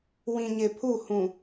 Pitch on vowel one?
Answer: low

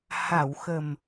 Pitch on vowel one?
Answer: low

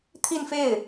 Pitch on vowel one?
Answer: falling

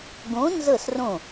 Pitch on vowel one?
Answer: rising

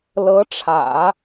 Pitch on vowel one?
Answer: rising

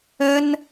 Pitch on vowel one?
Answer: high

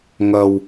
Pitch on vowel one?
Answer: low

